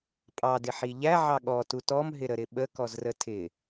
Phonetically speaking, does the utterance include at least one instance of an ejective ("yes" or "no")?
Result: yes